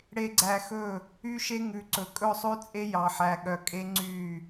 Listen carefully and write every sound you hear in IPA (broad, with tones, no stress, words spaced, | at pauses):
ɽe˨ɡ͡ǀæ˨ xɵ˦˨ | y˦ʃe˦ŋʉ˨ǀɵ˨ kʼɵ˦˨sˤʉ˦t͡sʼe˦ jɑ˨ħæ˨ɠœ˨ kʼe˦ŋ͡ǀy˦˨